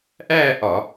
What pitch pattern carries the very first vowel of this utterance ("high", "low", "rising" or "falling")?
falling